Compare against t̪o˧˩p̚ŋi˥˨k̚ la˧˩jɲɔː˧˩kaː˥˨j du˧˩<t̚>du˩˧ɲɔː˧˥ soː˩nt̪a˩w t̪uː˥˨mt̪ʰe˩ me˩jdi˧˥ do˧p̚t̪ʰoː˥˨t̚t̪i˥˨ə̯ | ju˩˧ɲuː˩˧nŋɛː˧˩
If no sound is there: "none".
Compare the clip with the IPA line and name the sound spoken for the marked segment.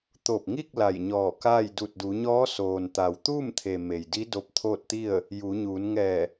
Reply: t̚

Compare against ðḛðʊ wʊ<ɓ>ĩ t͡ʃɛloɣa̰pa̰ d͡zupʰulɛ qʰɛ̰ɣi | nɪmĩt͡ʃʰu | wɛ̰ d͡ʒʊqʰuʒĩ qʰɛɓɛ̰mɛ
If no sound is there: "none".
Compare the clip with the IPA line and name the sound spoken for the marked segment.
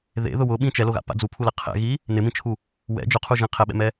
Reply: ɓ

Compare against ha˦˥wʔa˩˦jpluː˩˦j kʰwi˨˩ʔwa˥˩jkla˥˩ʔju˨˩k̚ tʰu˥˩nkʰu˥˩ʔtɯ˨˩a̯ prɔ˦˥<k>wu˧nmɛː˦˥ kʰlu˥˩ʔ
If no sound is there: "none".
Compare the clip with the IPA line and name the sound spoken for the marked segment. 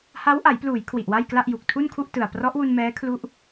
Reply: ʔ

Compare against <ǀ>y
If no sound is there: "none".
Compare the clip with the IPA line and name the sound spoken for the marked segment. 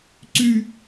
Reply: ǀ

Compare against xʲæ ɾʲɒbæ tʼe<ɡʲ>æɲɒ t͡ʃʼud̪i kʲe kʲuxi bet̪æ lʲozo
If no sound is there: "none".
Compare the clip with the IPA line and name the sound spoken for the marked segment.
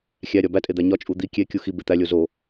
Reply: d̪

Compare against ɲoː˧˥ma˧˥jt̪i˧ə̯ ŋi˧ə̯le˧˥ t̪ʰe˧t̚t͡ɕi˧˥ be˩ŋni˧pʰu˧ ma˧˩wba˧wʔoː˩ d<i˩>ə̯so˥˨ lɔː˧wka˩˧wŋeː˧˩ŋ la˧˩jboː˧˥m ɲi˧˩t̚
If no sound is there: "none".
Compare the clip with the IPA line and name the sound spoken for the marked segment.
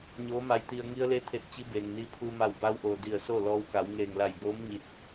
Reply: i˧˩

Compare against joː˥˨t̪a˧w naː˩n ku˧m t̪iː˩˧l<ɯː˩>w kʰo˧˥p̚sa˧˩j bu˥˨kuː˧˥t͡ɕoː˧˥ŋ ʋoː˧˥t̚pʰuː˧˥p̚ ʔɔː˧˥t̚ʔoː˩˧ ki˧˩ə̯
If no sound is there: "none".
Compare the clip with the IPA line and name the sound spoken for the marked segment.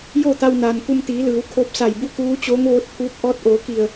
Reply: ɯː˩˧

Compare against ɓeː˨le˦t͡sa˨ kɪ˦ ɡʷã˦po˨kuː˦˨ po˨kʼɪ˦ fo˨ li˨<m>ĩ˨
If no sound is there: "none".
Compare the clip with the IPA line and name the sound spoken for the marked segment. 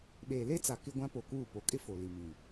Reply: m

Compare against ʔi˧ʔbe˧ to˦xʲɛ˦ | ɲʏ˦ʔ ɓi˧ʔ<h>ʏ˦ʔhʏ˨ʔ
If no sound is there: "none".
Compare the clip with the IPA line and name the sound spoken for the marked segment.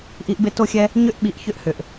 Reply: ç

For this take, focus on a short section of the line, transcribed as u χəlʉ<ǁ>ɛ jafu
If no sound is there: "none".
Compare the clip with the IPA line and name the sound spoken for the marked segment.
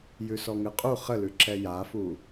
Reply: ǁ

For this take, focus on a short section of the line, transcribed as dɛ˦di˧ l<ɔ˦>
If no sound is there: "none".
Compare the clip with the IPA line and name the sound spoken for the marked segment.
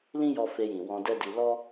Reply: ɔ˦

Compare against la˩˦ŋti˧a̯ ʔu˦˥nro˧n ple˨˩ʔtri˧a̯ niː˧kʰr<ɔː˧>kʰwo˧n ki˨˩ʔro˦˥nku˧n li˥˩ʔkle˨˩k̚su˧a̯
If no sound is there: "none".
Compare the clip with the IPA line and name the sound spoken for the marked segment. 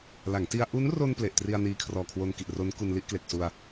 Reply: ɔː˨˩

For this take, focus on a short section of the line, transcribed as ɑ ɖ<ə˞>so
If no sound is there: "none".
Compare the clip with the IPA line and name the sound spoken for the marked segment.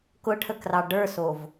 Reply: ə˞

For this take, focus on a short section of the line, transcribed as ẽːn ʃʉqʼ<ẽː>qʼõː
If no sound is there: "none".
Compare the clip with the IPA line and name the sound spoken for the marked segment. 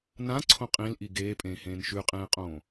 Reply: ẽː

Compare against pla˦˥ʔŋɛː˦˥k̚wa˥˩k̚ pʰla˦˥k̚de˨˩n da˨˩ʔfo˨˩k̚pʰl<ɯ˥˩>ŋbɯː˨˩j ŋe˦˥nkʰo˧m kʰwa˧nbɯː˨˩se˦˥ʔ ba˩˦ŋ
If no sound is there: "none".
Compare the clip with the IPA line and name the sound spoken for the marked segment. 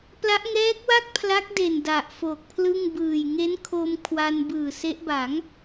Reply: ɯ˥˩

